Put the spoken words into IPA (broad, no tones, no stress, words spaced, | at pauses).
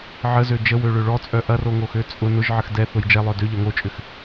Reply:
ʕəzø d͡ʒəwøɭø ɭɔt͡sʼœ ʔɐroŋoxø t͡sʼʊ nʊʒʕəx dɛθʊj d͡ʒɛlˠœ døʎœ ŋot͡ʃʼʏx